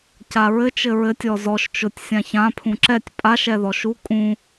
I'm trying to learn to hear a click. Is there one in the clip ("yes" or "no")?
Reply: yes